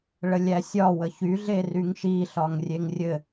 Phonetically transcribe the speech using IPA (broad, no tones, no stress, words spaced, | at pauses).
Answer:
ɭəlʲæsʲɒ wəçy ɮeryŋʃi ɬɒŋrʲeŋrʲɘ